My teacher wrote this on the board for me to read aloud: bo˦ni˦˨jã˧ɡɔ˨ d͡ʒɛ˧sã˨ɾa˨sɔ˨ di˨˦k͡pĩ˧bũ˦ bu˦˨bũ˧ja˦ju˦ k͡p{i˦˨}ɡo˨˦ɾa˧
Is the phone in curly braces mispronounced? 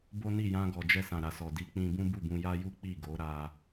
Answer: no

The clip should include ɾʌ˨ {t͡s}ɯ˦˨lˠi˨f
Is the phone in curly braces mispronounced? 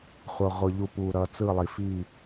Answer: no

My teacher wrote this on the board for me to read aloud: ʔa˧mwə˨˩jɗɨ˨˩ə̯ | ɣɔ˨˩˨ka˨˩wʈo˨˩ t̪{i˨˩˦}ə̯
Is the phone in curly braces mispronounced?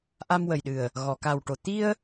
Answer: yes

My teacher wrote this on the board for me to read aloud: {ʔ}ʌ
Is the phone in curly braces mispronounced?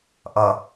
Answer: no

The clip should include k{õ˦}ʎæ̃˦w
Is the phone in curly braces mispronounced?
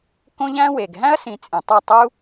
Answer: no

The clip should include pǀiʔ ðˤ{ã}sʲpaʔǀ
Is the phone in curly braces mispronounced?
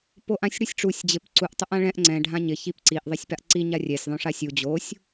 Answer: yes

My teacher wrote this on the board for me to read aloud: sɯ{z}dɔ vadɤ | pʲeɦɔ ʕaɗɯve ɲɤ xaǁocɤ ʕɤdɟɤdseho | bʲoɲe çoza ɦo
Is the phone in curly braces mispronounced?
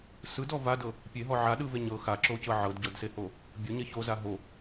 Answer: yes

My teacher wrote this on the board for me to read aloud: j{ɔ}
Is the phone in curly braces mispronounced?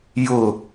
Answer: yes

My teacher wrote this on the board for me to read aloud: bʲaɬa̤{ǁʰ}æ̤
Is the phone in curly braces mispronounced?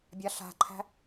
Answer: yes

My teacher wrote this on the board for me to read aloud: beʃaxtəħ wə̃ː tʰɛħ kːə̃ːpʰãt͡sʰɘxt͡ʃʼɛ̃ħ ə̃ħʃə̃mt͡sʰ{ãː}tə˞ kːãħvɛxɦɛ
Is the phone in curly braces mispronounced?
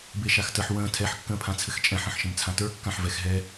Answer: yes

